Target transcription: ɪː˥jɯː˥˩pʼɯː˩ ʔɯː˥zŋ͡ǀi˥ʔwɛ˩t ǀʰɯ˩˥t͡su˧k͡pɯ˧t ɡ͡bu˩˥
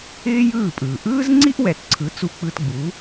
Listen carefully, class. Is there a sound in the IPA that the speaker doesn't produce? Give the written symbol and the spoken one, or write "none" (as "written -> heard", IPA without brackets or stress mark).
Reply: none